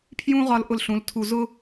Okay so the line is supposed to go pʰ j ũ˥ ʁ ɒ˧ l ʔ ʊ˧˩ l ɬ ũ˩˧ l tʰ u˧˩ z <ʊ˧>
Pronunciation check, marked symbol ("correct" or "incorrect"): incorrect